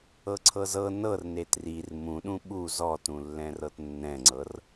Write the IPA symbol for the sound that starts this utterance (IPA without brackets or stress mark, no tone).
ɤ